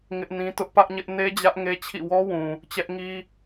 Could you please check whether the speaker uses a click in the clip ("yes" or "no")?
no